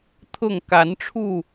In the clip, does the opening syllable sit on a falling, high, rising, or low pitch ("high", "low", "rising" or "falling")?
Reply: falling